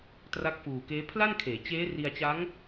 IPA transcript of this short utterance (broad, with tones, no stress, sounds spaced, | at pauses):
t r a˦˥ k̚ f uː˨˩ k eː˦˥ pʰ l a˥˩ n kʰ eː˩˦ t͡ɕ eː˦˥ r i˧ a̯ t͡ɕ a˦˥ ŋ